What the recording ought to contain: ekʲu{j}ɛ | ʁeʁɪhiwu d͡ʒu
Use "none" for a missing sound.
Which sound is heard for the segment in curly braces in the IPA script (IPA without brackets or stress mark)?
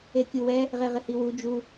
w